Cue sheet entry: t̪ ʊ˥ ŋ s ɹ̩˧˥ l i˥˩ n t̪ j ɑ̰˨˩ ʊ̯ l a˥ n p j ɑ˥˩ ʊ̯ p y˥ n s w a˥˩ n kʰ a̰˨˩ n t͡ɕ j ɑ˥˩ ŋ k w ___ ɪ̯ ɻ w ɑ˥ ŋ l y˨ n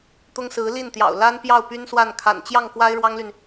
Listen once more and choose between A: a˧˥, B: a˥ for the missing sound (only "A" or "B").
B